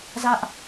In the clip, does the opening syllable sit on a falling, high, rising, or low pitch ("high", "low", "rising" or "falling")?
high